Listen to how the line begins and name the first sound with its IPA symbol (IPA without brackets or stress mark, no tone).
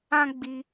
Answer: ã